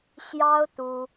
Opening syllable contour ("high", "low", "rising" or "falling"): high